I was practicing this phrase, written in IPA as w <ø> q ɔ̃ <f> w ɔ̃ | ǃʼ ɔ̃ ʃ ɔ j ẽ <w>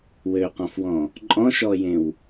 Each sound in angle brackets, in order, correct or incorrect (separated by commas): correct, correct, correct